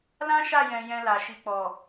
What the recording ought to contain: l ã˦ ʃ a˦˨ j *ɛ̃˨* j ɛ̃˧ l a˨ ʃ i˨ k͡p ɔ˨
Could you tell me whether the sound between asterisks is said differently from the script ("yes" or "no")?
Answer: no